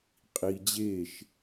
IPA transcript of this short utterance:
qʼ i d͡ʑ e ʃ

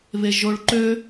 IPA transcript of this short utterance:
β e ʒ o ɭ ǃ ø

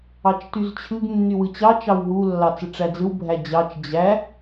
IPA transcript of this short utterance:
ɑ t͡ʃ t y z t͡ɕʰ ɯ ɡ nː y w ɯ t͡ɕ ɑ t͡ʃ ɑ w ɦ u lː ɑ t͡s ɯ ʈ͡ʂ æ d͡z ɯ w bʱ æ d͡ʑ ɑ t͡ʃ d͡ʑ æ

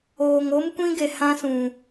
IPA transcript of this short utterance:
oː˨ ŋ o˦ m kʷ ĩ˦ ɡ e˨ h ã˦ s ũ˨

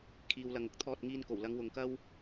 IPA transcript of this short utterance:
kʰ iː˨ w l ɐ˨ ŋ ʊ˥ k̚ t̪ʰ ɔː˧ t̚ ŋ iː˥ n k o˨˩ w l ɐ˥ ŋ w ʊ˨˧ ŋ k ɐ˥ w

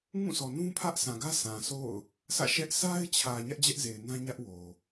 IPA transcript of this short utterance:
ŋ ũ˦˨ sʰ ɔ˨ n ũ˦ pʰ ä˦ ʔ s ã˨ ɡ ä˦ s ã˨ sʰ o̰˦˨ ʊ̯ | s ä̰˦˨ ʃ ɛ˦ ʔ sʰ a˦ ɪ̯ t͡ɕʰ ä˨ ɲ ä˦ ʔ d͡ʑ ɛ˦ ʔ z e˨ ɪ̯ n ã˦ ɲ ä˦ ʔ w o˨

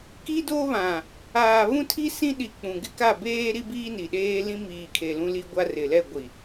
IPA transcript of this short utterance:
k i˦ d o˦ β ã˨ | aː˨ β ũ˦ tʰ i˦ s ĩ˦ ɗ i˨ k͡p ũ˨ ɡ ɪ˦ k a˦˨ b eː˦ ɾ i˦ b iː˦ n i˨ ɗ eː˦ l ĩ˦ m iː˨ kʰ e˨ l ũ˦ l i˦ ɡʷ a˦ r ɪ˨ l ɛ˦˨ ɡʷ i˨

